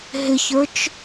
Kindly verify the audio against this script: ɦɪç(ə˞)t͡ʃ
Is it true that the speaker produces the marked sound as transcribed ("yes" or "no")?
yes